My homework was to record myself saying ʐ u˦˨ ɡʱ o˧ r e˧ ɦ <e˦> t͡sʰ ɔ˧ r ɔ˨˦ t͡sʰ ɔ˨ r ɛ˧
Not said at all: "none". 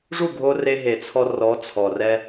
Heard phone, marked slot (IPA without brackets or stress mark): e˨